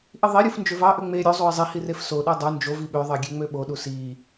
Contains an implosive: yes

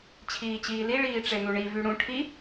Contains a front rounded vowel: yes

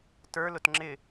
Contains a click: yes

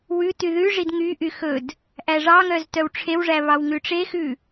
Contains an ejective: no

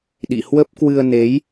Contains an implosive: yes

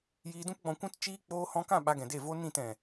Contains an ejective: no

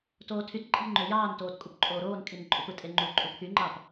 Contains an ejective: yes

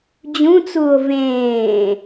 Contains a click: no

